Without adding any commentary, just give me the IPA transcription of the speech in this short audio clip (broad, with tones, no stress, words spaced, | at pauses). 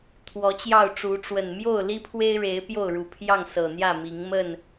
t̪ʰwɔ˨˦t͡ɕjɑ˥˨ʊ̯ʈ͡ʂu˨˦ ʈ͡ʂwə˨˩nmjo˥˨ʊ̯ li˦pʰwe˦ɪ̯ɻe˨˦ɪ̯ pjo˥˨ʊ̯ɻu˨˩pʰjɑ˥˨ŋ sɤ˨˩n̪jä˥˨mi˨˦ŋ mə˥˨n